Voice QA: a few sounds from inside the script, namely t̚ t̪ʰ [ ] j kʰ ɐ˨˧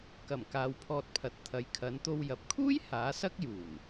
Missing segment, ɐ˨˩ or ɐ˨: ɐ˨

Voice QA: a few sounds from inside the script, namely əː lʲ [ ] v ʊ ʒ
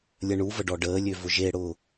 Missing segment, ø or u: ø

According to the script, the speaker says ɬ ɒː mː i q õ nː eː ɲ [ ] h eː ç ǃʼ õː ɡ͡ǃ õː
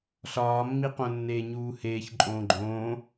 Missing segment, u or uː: uː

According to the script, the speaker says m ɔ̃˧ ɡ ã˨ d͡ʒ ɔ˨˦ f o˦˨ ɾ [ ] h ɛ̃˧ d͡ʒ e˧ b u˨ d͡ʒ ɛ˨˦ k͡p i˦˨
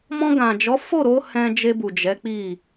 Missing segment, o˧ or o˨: o˧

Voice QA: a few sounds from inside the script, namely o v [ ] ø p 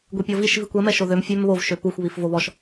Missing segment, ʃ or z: ʃ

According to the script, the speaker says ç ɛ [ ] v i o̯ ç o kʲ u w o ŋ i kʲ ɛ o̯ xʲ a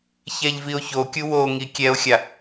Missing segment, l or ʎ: ʎ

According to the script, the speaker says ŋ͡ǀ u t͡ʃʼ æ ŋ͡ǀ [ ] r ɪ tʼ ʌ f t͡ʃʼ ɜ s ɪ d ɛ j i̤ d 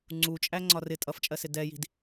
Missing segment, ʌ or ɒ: ɒ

